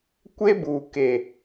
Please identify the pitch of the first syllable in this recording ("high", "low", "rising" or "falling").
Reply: high